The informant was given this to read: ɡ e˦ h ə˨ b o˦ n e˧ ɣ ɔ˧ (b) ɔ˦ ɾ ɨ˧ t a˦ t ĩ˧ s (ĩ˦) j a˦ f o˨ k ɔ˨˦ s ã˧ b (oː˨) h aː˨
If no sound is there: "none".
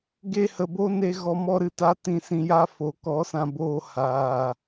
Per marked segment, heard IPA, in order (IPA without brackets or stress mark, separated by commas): m, ĩ˧, oː˧